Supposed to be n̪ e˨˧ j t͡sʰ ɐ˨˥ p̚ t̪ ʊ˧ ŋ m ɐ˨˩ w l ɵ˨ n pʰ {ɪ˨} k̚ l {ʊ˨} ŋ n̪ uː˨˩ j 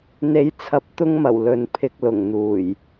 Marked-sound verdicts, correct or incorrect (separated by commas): correct, incorrect